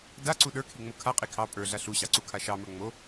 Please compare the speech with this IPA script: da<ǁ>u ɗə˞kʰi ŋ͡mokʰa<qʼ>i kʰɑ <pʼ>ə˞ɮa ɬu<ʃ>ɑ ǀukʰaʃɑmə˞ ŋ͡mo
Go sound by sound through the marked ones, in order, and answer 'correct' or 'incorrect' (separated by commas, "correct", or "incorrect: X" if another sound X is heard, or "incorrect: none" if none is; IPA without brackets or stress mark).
incorrect: ǀ, correct, correct, incorrect: ɕ